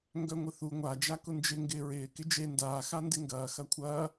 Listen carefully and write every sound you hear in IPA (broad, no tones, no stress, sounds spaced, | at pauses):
ŋ ɡ œ ŋʷ ɪ θ u ŋʷ a d͡ʒ a k ʊ n d͡ʒ ɪ ŋ ɡ ɪː ɹ ɪː k ɪ d͡ʒ e n d aː x a n d ɪ ŋ ɡ ɐː x ɐ kʷʰ ɐː